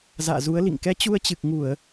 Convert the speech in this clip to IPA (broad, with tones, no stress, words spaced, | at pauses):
za̰ː˧˨zu˨˦ə̯lḭ˧˨ŋ kɛ˧t͡ɕu˧ə̯t͡ɕɨ˨˩k̚ŋu˧˩˨ə̯